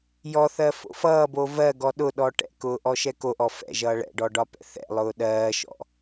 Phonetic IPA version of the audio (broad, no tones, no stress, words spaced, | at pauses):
jɔθɜ fo̰fʌːbo vɜ ɡɔɗʊɗɔ ʈɛ̰kʊː ʔɔʃɛkoʔɔ fɛ̰ʒʌː ɭɛ̰ɖɔ ɖɒpɛ̰θɛ̰lˠʊː ɗɜːʃɔ̰